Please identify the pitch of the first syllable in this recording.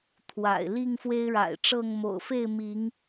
low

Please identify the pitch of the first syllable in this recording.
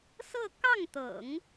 falling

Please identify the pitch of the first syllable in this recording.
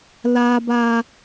high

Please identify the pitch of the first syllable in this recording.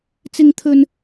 high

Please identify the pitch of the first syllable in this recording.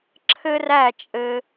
high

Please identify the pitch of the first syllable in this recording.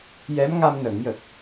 rising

